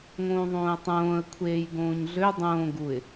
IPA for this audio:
ŋ õː ðˤ õː ə̯ tˤ õː ə̯ kʷʰ eː j ɡ õː ɲ ɮ ø dˤ õː ɡ u ɪ̯

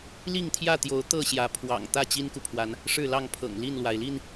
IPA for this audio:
l i˥˨ ŋ t̪ʰ j ä˥˨ t̪ j o˨˦ ʊ̯ t̪ ɤ˥˨ ɕ j ä˨˦ pʰ w ɑ̰˨˩ ŋ t̪ ä˥˨ t͡ɕ i˦ n k u˨ pʰ w a˨˦ n | ʂ ɻ̩˥˨ l ɑ˥˨ ŋ pʰ ɤ̰˨˩ ŋ l i˥˨ n l w a˩ ɪ̯ l i˥˨ n

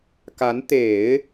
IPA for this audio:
k a˧˥ n t̪ e˨˩˦ ɪ̯

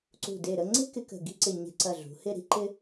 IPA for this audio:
ǀ ṳ˧˩ d e˧˩ ɾ ə˥˧ ŋ͡ǀ e̤˥ k ɪ˧ k ə̤˧˩ ɡ i̤˥˧ ǀ ɪ˧˩ ɲ e̤˧ ǀ ɐ˧˩ ɮ ṳ˩˧ h ɪ˥˧ ɾ i̤˥ ǃ ɪ˥

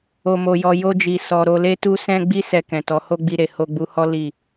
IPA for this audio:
o˨ m o˨ j ɔ˨ j o˧ d͡ʒ i˨ s ɔ˨ ɾ o˧ l e˦ t u˦ s ɛ̃˦ ɡ͡b i˦ s ɛ˧ k ɛ̃˨ t ɔ˨˦ h o˦ ɡ͡b i˧ ɾ e˨ h o˧ ɡ͡b u˧ h ɔ˦ l i˦˨

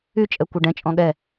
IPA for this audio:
y t͡ʃʼ ɛ kʷ ɛ ɖ ɛ̃ t͡ʃʼ ɔ̃ ɠ ɛ

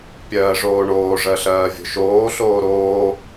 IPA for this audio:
pʲ ɜː ʐ oː ɳ oː ʐ ɜ ɬ ɜː vʲ o̤ ʃ oː ɬ oː ɾ oː

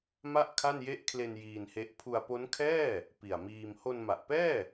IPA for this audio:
m a˥˩ ʔ kʰ a˥˩ n j e˦˥ ʔ kʰ l e˧ n j iː˧ n h e˦˥ ʔ pʰ u˧ a̯ p o˦˥ n kʰ ɛː˥˩ | p i˨˩ a̯ m iː˧ m h o˧ n m a˨˩ ʔ p ɛː˥˩

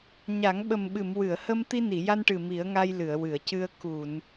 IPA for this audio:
ɲ a˨˩˦ ŋ ɓ ə˨˩ m ɓ ɨ˨˩˨ m w ɨ˨˩˨ ə̯ h ə˧ m t̪ i˧ n i˨˩˨ j a˧ n ʈ ɨ˨˩ m i˨˩˦ ə̯ ŋ a˧ j l ɨ˨˩˨ ə̯ w ɨ˨˩˨ ə̯ c ɨ˧ ə̯ k u˨˩˨ n

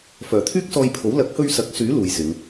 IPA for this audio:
f œː˨˩ t̪ʰ yː˥ k̚ s ɔː˧ j pʰ o˨˥ w l ɐ˨˥ k̚ h ɵ˧ ɥ s ɐ˨˥ k̚ s yː˨˥ l uː˨ j s ɪ˨˧ ŋ

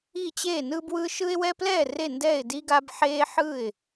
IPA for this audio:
i˥˩ t͡ɕ eː˥˩ n ɯ˦ b w ɯ˦ ʃ ɯ˦ ɪ̯ w ɛ˦ p l ɛː˥˩ r e˥˩ n d ɛː˥˩ ɪ̯ d i˦ ɡ a˦ b ħ eː˦ ħ ɯ˥˩ ɪ̯

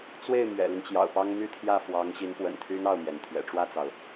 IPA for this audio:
t͡s w e˥˩ ɪ̯ m ɥ ɛ̰˨˩ l y˦ n t͡ɕ j ɑ̰˨˩ ʊ̯ p ɑ˥ ŋ m y˥˧ t̪ʰ j ä˥˩ f w ɑ˧˥ ŋ ɕ i˧˥ n p w ə̰˨˩ n t̪ʰ y˥ n ɑ˥˩ ʊ̯ m j ɛ˩ n t̪ʰ ɥ ɛ̰˨˩ ʈ͡ʂ w ä˥˩ t͡s ɑ˩ ʊ̯

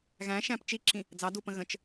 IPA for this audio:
ɣ æ̃ ʃ æ̃ p t͡ʃ i ǁʰ ĩ | d͡z ɑ d u p ə̃ ɣ ə̃ t͡ʃ

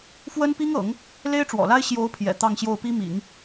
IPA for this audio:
f w ə˥ n p i˥ ŋ ɤ̰˨˩˦ ŋ | l e˥ ɪ̯ ʈ͡ʂ w ɔ̰˨˩ l a˥ ɪ̯ ɕ j o˧˥ ʊ̯ pʰ j ɛ̰˨˩ t̪ ɑ˥˧ ŋ ɕ j o˥˩ ʊ̯ p i˥ m ḭ˨˩˦ ŋ

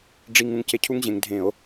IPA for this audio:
ɖ͡ʐ i˧ ŋ ũ˧ ŋ c e˧ cʰ u˦˥ ŋ ʑ ẽ˩˧ ŋ dʱ ẽ˧˩˧ o̯

